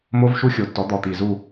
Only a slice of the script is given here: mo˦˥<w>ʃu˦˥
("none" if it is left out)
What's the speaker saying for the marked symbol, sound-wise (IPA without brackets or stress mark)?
v